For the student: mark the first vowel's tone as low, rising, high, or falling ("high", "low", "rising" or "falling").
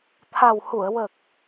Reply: low